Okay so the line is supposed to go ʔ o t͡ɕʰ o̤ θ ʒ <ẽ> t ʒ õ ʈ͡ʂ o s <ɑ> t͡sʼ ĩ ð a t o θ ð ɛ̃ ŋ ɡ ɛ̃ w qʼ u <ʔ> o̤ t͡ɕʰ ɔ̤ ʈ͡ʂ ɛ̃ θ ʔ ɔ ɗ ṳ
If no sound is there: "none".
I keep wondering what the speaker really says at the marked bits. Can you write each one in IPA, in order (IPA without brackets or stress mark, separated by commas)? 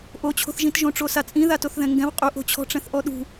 ĩ, a, ʔ